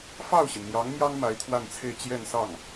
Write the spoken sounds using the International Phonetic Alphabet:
fɑ˥˩ʊ̯ɕi˩nn̪jɑ˧˥ŋmjɑ˥ŋ ma˧˥ɪ̯t̪ʰwa˥˧nt͡sʰe˥˧ɪ̯ t͡ɕjɛ˥˧nsɑ˥˩ŋ

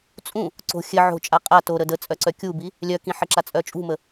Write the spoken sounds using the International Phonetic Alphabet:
t͡sʼũ | ǀo̤ xʲɘ ʕo̤ t͡ʃʼaqʼa toɾə dət͡sʼœǀœ kʲubi | lʲœkĩħə ǁat͡sʼœt͡ʃʼṳmə

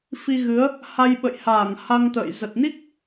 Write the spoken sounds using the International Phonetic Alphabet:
fi˧ɣɨ˨˦ə̯ | ha˧jɓə̰˧˨jhaː˧˩ŋ ha˧ŋt̪ə̰ː˧˨j zə˨˩t̚ni˦˥k̚

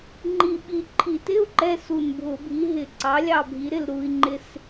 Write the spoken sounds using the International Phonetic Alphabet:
ŋ͡ǃi˧˩ ɓi˧˩ǃʰi˧˩˧tɪ˧˥˧u̯ ǃɛ˧˥˧su˧˩nbʱʊ˧˩˧bʱi˨˥ ɦɪ˧˩ǀɑ˨˥ lʲɑ˧˩bʱi˩˧ɾɪ˧˩l ɾu˧˩i̯ŋ͡ǃɪ˧˩s

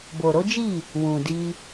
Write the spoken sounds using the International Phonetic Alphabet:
bo˨ɾo˨˦d͡ʒi˦˨ | wũ˨di˧

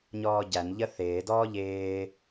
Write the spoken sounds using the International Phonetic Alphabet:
ɲɔːɟæn ʎəθɪː dɔːʎɪː

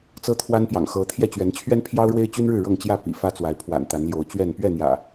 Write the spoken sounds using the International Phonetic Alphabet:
t͡sɤ˦t̪ʰwa˦npjɑ̰˨˩ŋ xɤ˨˦ t̪ʰjɛ˥˨t͡ɕɥɛ˨˦n t͡ɕʰɥɛ˦npʰjɑ˦ʊ̯ ɻwe˦ɪ̯t͡ɕy˦nɻɻ̩˥˨ ɻɤ˥˨ŋt͡ɕjä˥˨ pḭ˨˩fä˦t͡swa˨˦ɪ̯ pʰwa̰˨˩nt̪a˨˦nljo˨˦ʊ̯t͡ɕɥɛ˥˨n pɥɛ˥˨n̪jä̰˨˩

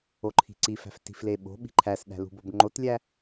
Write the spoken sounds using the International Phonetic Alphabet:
oǃʰi̤ǀifæ̤f ti̤fleɓo̤ɓi̤ ǃʰæsɗæ̤ lṳbobŋ͡ǃotlʲæ

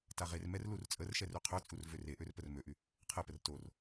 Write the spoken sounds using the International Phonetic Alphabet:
taʁermɛr lurt͡sʼərʃɛr øqʰœt͡sʼur vøreʔør pərmøʔy | qʰɛpər tor

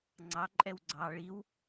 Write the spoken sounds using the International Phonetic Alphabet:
ŋ͡ǀɑǃʼɛw ɡ͡ǀɑ ɭiw

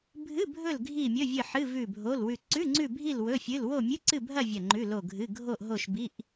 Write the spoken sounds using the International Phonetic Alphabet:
bʱɨ˧˥˧bʱɵ˦˨l ɡʱi˦˨ mʲɵ˧˥˧vʲɨ˦˨ħɨ˧˥˧ vʉ˦˨bʱo˧˥˧lwʉ˦˨ ǀʉ˧˥˧ŋ͡ǀʉ˦˨bʱi˦˨l wɵ˧˥˧fʲɨ˧˥˧l wo˦˨mʲɨ˧˥˧ǀɨ˦˨bʱɐ˦˨ vʲɐ˦˨ŋ͡ǃʉ˧˥˧lo˦˨ɡʱɨ˧˥˧ ɡʱo˦˨ʔ ɦo˦˨ʃbi˧˥˧ʔ

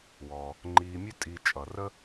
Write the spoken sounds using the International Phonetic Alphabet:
wɔː˩ | ŋ͡ǃiː˨mʲɵ˦ tʼi˨t͡ʃʼʌ˩ rə˥

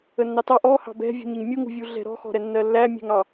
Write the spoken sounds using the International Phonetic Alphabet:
ənːɑtɑ ʔɔhɑ̤ bɛ̤vʲṳɲəɲ mʲuŋṳvʲu ɮɛ̤ɾɔ̤xɔ̤ɾɛ nːɜlːæmʲɛ̤ŋ ɑ

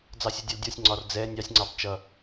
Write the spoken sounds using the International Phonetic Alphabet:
d͡zɑsʲɛdʲɛldʲɒsʲ ŋ͡ǀɒrd͡zɛ nʲɑsʲŋ͡ǀɑb t͡ʃʌ

